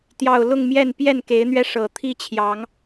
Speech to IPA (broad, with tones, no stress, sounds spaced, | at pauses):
t̪ j ɑ˨˩ ʊ̯ l ʊ˥˨ ŋ m j ɛ˥˨ n p j ɛ˥˨ n k e˨˦ ɪ̯ n̪ ɥ ɛ˧ ʂ ɤ˨˩ t̪ʰ i˥˨ t͡ɕʰ j ɑ˨˦ ŋ